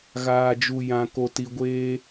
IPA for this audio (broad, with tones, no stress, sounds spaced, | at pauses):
ɣ aː˨ d͡ʒ u˨ j ã˨ k o˨ t i˨ ɡʷ eː˦